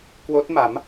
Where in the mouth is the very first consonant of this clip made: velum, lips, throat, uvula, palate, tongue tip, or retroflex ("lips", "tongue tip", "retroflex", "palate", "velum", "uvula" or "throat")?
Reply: velum